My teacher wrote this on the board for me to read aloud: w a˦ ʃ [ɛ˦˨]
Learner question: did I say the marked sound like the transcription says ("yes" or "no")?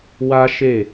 no